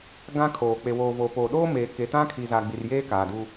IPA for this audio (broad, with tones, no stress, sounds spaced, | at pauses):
ɡ ã˦ kʰ oː˨ k͡p e˨ w oː˨ v oː˨ p oː˨ ɗ oː˦ m eː˨ k e˨ t ã˦ kʰ i˨ z aː˨ ɡ͡b i˨ r j eː˦ k aː˨ d u˦